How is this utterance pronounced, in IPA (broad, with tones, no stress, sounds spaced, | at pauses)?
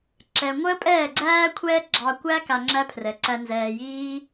ǁ ɛ˨ ŋʷ əː˦ pʼ ɛː˦˨ ɡ͡ǀ æː˦ kʷʰ ɛː˦ ɡ͡ǁ ɑ˧ kʷ æ˦ k a˧ ŋ͡ǁ æ˦ pʰ r ɛ˨ ǀ æ˧ n z ɛː˨ j iː˦